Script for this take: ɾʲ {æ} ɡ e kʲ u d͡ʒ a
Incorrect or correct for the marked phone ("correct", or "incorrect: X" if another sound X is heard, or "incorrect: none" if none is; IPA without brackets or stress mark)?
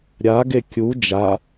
incorrect: a